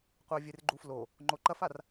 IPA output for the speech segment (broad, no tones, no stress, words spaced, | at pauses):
qʷɛvʲerɡ͡ǃuflo | ŋ͡ǃoǃɐfar